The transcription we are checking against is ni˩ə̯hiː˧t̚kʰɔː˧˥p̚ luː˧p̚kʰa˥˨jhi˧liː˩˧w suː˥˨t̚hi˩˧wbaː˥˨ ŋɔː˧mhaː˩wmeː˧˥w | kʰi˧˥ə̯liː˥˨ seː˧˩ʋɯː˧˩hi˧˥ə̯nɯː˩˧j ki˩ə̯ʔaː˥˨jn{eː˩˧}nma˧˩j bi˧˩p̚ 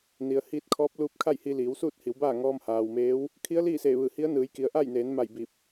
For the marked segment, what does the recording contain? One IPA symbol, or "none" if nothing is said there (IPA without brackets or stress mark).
eː˩˧